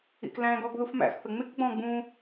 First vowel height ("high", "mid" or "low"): high